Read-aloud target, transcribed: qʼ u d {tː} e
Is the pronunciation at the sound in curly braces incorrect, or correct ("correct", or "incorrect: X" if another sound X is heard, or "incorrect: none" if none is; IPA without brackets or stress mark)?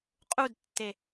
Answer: correct